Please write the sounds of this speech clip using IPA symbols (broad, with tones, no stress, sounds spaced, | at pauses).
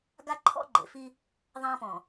ɡ a˦ ǃʰ ɔ̰˦ ɡ͡ǃ ḛ˨ f i˦ | ðˤ ã˦ p ɔ̃˨